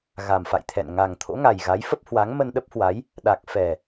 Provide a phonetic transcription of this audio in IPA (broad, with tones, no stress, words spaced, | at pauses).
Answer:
ɣa˨˩mfa̰˧˨jt̪ʰɛ̰˧˨n ŋa˨˩ŋ t̪ʰo̰˧˥ŋa˨˩jɣa˨˦jfə˦˥p̚ hwa˨˦ŋmə˧nɗə˦˥p̚hwa˨˦j | ɗa˨˩k̚fɛ˨˩